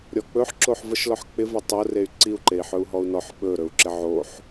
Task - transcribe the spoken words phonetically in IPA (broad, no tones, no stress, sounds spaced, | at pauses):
ɾʲ ɔ k͡p ɵ ħ ǁ o ħ v ə ʃ l ɔ ħ k͡p ɪ v e tˤ o r e y̯ ǀ i u̯ ǃ e i̯ ħ ɵ u̯ ɦ ɔ u̯ n ɔ ħ ɓ ɵ ɾ ɵ u̯ ǁ ɪ ʕ o ħ